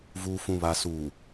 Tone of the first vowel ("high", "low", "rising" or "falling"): low